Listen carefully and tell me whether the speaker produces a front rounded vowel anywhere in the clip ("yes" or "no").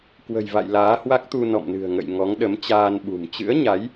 no